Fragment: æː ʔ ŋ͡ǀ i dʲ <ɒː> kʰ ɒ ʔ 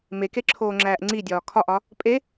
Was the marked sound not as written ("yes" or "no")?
no